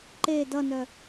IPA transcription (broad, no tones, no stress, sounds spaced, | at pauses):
ǃ e d ʌ n œ